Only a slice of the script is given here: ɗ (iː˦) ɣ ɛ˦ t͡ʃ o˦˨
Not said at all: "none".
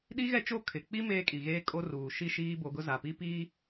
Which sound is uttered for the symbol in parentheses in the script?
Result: i˦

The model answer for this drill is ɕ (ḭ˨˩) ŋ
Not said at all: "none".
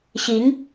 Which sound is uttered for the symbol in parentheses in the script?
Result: i˧˥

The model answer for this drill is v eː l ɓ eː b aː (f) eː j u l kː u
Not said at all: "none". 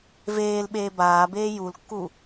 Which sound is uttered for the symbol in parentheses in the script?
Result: b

